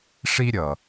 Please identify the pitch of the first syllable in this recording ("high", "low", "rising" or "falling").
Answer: high